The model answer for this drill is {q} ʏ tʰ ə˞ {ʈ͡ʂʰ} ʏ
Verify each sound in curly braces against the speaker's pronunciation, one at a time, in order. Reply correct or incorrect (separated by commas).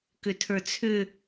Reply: incorrect, incorrect